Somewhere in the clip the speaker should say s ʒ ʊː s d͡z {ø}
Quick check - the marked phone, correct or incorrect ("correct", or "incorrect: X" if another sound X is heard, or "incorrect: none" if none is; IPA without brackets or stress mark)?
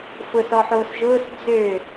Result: correct